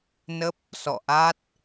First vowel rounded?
no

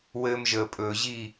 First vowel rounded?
no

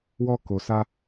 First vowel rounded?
yes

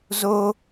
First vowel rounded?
yes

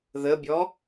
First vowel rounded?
no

